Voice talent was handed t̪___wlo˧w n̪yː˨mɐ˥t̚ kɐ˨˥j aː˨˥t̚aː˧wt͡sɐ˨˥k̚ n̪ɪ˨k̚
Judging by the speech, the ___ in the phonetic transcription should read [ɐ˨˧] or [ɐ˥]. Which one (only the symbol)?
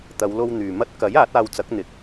ɐ˨˧